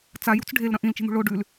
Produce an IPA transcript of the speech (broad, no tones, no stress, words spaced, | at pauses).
t͡sajṳt͡s ɖʱelɾɐ̃ ʔĩlt͡ʃi̤n̪ṳ ɭo ɖʉl